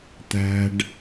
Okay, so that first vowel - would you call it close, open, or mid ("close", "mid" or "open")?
open